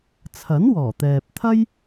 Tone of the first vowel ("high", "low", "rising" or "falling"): rising